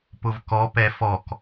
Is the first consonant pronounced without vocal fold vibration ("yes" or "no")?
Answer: yes